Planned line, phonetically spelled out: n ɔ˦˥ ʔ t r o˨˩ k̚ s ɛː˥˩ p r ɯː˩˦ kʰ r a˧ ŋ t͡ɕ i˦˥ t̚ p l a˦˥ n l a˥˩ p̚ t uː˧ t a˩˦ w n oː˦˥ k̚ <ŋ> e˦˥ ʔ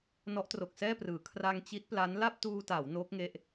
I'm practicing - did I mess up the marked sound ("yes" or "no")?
no